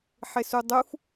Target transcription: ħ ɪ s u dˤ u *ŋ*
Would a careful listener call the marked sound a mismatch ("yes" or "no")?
yes